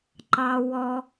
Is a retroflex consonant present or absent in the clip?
absent